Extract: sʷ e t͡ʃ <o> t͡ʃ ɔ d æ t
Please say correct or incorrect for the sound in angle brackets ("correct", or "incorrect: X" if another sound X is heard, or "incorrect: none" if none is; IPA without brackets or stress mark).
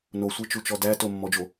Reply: incorrect: u